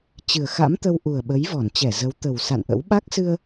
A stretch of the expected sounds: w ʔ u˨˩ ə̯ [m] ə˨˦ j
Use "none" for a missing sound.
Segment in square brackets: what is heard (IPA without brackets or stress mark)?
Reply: ɓ